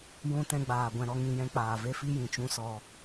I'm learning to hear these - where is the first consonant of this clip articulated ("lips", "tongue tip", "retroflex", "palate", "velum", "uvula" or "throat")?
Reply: palate